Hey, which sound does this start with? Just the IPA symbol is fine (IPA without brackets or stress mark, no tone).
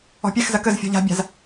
ɔ̤